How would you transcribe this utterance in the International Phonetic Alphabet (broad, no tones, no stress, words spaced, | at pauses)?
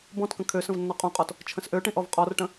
bɔ̃tkə̃ kʰø sə̃vnːɔqʼõqʼɔt | t͡ʃʰə̃sʔøʈĩ ʔɔvqʼɔrʈə̃